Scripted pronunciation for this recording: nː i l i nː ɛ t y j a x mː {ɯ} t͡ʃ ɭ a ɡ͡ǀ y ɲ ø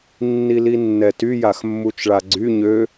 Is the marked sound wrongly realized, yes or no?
yes